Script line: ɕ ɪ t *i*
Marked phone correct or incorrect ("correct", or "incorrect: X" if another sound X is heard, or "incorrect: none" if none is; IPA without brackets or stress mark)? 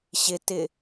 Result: incorrect: ɪ